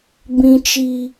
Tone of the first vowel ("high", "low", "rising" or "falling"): high